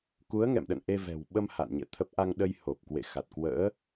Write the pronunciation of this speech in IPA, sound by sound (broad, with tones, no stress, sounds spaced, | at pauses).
k u˨˦ ə̯ ŋ ɛ̰˧˨ m ɗ ə̰˧˨ n ʔ e˧ v ɛ̤˨˩ w ɓ ə˧ m h a̰˧˨ n ɲ ɛ̰˧˨ t̪ʰ ə˦˥ p̚ ʔ a˧ ŋ ɗ ə˧ j h o˨˩ p̚ k w ḛ˧˨ x a˨˩ t̚ k w ə̰ː˧˥